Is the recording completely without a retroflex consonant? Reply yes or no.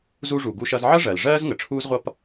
no